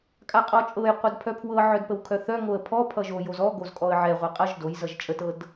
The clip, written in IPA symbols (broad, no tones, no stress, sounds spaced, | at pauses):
kʼ a qʼ ɔ t͡ʃʼ ɤ j qʷ ɤ d pʰ œ pʰ w ɤ ʕ œ d p ə w kʰ œ θ œ ŋ o ə̯ pʰ ɔ pʰ ʌ ʒ o j o z ɔ ɡ o z kʼ ɔ ə̯ ʕ ɛ ʁʷ a qʼ ʌ ʒ d o j z ʌ ʒ t͡ʃʼ ə t ɤ d